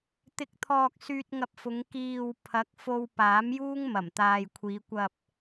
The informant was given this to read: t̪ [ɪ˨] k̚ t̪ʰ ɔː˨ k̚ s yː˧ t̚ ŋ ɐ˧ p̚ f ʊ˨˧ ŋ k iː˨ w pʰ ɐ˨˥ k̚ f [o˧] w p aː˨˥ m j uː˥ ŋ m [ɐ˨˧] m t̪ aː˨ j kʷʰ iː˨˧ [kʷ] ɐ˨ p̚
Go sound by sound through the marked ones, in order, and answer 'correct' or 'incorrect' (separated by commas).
correct, correct, incorrect, correct